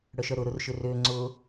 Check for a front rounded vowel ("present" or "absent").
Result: present